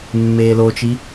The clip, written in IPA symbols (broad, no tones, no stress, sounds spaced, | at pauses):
mː eː l o t͡ʃ i